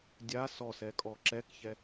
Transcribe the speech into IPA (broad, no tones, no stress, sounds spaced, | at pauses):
dʲ a s ɔ s ɛ kʼ ɔ ǁ ɛ k ç ɛ